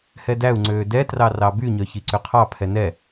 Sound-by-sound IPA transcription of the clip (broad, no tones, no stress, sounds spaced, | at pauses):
h ɛ d æ u̯ ŋ͡ǀ øː d ɛ t r ɑ r ɑ b y ɲ œ ç i ǀ ø qʰ ɑ pʰ ɛ n ɛ